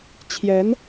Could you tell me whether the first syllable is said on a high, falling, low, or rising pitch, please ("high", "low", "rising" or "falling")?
rising